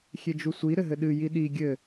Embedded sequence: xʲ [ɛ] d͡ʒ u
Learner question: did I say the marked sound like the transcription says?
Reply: no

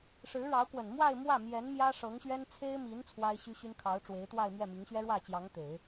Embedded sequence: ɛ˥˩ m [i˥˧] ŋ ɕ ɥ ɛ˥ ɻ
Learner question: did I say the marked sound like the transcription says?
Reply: no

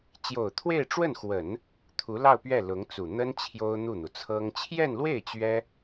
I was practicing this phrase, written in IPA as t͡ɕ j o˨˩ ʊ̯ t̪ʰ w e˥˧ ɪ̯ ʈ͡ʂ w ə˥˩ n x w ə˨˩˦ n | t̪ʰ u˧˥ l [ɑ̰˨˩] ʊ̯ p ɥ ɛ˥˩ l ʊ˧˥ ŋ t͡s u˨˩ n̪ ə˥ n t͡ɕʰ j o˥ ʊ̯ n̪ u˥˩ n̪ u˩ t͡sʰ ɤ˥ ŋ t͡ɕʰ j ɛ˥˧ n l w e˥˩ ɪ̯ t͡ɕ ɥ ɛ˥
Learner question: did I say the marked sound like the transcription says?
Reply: no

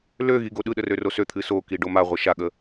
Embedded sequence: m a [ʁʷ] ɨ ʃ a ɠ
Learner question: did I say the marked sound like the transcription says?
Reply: yes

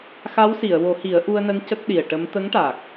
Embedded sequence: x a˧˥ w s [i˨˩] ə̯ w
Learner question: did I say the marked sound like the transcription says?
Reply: no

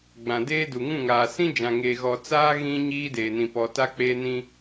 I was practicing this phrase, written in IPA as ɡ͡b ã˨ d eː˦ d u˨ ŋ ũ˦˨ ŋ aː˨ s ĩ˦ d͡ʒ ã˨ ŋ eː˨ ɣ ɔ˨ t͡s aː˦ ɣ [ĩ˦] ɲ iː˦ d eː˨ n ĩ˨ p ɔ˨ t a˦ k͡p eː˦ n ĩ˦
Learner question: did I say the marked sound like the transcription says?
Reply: yes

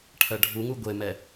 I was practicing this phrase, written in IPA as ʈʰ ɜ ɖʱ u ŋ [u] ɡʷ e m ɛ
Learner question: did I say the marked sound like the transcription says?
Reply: yes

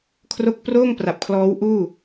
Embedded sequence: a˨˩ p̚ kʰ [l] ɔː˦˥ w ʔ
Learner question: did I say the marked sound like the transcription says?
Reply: yes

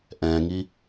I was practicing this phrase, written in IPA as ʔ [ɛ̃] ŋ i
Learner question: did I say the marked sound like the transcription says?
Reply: yes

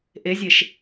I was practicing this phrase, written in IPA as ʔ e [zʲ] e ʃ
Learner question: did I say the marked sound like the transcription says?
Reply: yes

